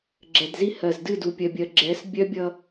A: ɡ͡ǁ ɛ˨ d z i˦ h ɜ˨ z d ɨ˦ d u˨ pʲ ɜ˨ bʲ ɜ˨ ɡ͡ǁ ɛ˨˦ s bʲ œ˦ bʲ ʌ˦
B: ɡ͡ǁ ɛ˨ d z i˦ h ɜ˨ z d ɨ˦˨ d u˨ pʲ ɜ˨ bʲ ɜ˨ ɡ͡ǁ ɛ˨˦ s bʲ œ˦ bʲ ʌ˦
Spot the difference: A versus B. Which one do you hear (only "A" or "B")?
B